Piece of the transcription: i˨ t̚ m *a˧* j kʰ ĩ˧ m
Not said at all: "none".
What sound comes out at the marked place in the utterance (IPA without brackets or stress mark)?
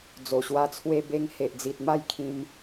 a˥˧